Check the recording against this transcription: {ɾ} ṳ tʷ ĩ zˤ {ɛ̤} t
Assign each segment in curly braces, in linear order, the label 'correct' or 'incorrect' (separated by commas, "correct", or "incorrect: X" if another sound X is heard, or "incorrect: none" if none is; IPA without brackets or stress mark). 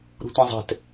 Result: correct, correct